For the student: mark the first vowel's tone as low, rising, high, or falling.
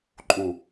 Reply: low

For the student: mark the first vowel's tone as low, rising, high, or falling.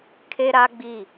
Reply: high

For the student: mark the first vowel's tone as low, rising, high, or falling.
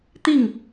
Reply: falling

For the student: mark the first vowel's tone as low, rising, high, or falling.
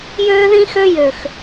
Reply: high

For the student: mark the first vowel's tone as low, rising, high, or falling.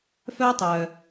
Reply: high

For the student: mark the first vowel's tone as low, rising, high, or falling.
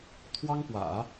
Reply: high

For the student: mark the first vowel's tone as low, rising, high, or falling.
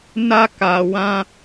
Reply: high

